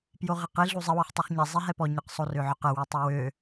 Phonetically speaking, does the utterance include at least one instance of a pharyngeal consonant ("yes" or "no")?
yes